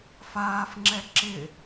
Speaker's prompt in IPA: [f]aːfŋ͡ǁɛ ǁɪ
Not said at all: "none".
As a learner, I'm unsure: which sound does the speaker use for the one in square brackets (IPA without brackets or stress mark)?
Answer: f